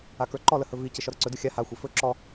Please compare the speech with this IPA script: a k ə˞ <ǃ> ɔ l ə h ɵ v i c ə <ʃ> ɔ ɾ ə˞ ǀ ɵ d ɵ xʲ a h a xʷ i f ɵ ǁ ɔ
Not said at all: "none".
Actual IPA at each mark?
ǃ, ʃ

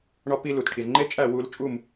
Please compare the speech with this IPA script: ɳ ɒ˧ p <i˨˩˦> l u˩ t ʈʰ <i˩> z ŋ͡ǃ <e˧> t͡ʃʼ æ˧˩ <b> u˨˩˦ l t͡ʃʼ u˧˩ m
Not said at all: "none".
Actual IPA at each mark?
i˧, i˩, e˧, w

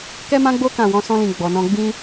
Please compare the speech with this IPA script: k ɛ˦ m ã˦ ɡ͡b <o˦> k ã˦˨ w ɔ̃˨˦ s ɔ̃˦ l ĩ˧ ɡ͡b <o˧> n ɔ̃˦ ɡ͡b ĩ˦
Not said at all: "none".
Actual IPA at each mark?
o˦, ɔ˧

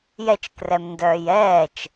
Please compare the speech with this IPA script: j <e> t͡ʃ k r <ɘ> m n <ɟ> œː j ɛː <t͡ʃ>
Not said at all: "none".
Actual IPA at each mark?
ɛ, ɛ, d, t͡ʃ

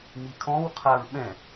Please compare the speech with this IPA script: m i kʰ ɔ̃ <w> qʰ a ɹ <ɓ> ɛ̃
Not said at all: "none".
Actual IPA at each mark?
w, ɓ

